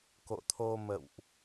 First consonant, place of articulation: velar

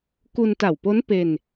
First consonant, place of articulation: velar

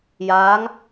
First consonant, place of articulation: palatal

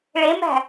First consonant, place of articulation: retroflex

